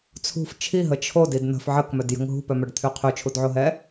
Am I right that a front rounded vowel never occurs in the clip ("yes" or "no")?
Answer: no